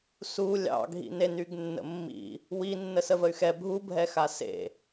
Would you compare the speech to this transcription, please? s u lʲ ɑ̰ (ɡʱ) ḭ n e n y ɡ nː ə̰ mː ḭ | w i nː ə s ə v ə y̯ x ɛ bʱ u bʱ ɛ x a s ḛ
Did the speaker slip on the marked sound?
no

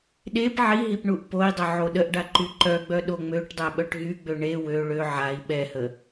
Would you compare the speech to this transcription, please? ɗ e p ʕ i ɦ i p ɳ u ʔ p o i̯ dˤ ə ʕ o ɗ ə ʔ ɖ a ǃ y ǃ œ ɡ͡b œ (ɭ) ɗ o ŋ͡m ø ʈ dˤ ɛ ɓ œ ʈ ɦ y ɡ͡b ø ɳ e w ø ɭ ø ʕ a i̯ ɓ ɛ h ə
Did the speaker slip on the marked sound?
yes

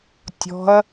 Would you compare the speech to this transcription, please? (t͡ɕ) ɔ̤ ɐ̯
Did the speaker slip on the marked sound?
yes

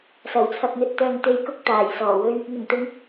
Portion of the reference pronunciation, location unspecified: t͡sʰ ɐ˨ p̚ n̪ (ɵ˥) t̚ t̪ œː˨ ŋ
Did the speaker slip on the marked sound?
yes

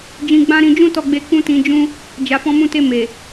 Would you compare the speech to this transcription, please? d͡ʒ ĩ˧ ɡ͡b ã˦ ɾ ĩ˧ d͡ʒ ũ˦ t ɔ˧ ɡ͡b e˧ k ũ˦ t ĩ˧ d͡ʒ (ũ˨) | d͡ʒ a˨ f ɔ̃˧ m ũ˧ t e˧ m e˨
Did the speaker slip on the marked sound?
yes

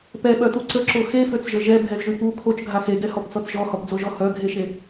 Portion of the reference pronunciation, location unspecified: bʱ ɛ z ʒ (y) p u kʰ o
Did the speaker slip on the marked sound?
no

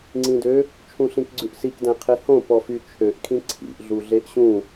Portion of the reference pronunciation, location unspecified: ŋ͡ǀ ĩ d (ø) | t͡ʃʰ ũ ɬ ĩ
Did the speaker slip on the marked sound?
no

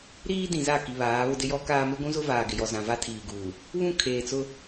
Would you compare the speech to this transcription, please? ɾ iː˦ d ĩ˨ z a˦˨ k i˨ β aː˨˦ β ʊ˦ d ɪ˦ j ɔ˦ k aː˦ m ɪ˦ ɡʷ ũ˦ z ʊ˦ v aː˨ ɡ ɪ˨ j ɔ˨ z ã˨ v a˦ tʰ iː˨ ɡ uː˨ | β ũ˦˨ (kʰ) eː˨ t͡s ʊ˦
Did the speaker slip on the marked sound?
no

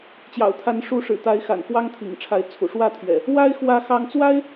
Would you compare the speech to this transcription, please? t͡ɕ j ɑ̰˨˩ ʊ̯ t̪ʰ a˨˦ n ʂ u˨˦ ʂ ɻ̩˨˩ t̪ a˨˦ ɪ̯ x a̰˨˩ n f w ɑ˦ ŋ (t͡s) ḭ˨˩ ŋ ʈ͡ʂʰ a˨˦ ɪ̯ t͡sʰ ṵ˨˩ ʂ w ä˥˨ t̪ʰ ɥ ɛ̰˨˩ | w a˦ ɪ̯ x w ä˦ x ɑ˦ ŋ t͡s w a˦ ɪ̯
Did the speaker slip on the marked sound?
yes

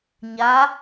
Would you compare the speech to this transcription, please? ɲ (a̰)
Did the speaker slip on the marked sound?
yes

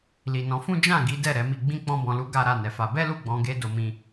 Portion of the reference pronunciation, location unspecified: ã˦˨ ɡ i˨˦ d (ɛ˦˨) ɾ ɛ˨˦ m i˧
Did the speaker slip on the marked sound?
no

